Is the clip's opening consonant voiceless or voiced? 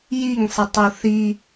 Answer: voiced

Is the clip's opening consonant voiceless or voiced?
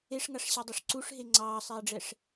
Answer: voiceless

